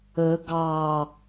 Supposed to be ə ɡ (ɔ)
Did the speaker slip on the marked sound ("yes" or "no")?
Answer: yes